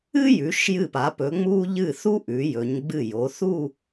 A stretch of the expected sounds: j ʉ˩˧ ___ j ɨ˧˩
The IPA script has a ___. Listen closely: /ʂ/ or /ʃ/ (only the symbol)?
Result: ʃ